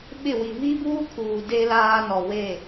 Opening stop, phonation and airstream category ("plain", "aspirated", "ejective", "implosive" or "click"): implosive